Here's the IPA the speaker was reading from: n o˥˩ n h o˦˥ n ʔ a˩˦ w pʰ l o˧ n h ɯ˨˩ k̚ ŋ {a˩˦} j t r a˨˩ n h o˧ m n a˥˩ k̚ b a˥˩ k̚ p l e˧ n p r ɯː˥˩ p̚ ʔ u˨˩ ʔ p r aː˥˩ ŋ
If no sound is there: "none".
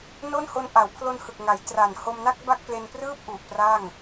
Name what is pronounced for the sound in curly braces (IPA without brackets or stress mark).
a˩˦